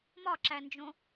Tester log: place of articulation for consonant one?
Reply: labial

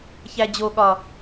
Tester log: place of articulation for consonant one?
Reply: palatal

